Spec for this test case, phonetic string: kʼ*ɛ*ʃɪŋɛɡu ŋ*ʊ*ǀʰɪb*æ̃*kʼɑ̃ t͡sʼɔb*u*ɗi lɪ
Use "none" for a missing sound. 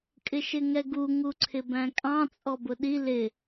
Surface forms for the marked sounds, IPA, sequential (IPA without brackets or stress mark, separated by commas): ɪ, u, æ̃, ʊ